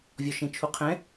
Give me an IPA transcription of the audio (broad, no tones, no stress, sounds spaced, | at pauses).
vʲ ɔ ʃ ẽ t͡ʃʰ u qʰ ɛ̃